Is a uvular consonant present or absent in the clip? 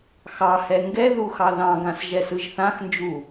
absent